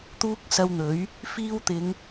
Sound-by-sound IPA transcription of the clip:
t̪uː˥k̚sɐ˧wn̪ɵ˨˥ɥ | fiː˧wt̪ɪ˨˧ŋ

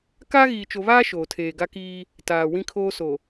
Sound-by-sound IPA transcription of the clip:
kaː˦ɣiː˨t͡ʃo˨βaː˦ ʃoː˨tʰeː˨ɡa˦kiː˦ | taː˨wĩ˦kʰoː˦ so˨

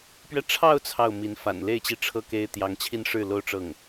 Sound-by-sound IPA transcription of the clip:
pɥɛ˥˧ ʈ͡ʂʰɑ˥˧ʊ̯ t͡sʰɑ˥˩ʊ̯mi˧˥n fa̰˨˩nle˥˩ɪ̯t͡ɕi˧˥ʈ͡ʂʰɤ˥˩ ke˥ɪ̯ t̪jɑ˧˥ŋt͡ɕʰi˥˧nʂɻ̩˥˩ lo˥ʊ̯ʈ͡ʂɤ˥˩ŋ

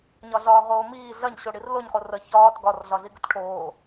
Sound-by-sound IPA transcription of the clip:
ɲɒɮɒːʁoːmiː ɮɐɲɕo ɽirloɲχo rə çɒːt ɡɒrɮɒɮi ɡətʈʰoː

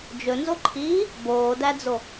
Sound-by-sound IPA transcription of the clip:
d͡ʒɵnzoǃʰiː | boːdæd͡zo

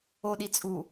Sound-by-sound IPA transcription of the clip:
oɗi t͡sʼu

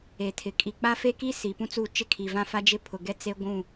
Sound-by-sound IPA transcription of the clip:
e˨tʰɪ˨ kʼi˨ k͡pa˦fe˦ki˦ si˨pũ˦t͡su˦˨ t͡ʃɪ˦kʰi˨vã˦ fa˦d͡ʒɪ˦pʰʊ˨ ɡɛ˦t͡se˦ɡʷũ˦˨

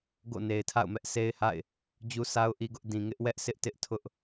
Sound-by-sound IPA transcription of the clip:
ɡo̰˦˨ne˨ɪ̯tʰa̰˦˨ʊ̯mɛ˦ʔ sʰe˦ɪ̯ha̰˦˨ɪ̯ | d͡ʑu˦sa˦ʊ̯ʔi˦ɡʊ˦ʔ dĩ˨ ŋɪ˦ʔ wɛ˦ʔ sɪ˦ʔtɪ˦ʔ tʰʊ˦ʔ

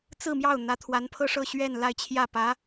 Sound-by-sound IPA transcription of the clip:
t͡sɹ̩˥˧mjɑ˥˩ʊ̯ n̪ä˧˥t̪ʰwa˧˥npʰɤ˥ ʂɤ˥˧ɕɥɛ˥˧n la˥˧ɪ̯t͡ɕʰjä˥˩pä˧˥

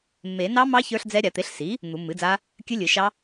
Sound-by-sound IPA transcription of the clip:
mːe˨˩˦ nɑ˦˥mɑ˦˥ çə˞˦˥ɬd͡zɛ˦˥ ɾʲa˨˩˦t̪e˩˥ɬsi˩˥ | n̪u˨˩˦mːɨ˩˥d͡za˦˥ | kʲɨ˦˥lʲɨ˨˩˦ʃɑ˦˥

